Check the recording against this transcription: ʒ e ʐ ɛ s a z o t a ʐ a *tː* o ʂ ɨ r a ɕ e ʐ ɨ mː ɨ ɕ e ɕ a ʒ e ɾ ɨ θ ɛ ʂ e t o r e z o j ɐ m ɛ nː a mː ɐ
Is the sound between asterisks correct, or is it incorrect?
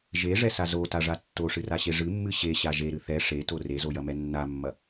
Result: correct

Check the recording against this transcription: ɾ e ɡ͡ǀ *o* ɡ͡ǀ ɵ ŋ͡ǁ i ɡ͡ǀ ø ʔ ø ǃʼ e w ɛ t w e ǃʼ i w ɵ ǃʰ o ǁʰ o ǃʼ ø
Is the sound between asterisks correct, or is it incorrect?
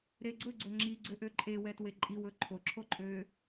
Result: incorrect: ɵ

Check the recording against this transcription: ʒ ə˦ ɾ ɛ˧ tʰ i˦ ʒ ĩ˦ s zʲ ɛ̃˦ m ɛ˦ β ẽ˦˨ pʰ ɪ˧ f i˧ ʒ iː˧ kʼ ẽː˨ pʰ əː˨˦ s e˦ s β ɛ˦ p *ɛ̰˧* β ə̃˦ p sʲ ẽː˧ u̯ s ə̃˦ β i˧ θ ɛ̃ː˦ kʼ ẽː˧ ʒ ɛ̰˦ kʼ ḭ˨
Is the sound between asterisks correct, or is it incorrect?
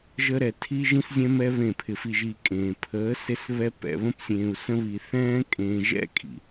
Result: correct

